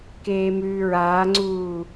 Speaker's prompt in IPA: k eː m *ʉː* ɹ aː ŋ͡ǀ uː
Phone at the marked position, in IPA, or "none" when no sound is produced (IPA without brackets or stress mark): ʉː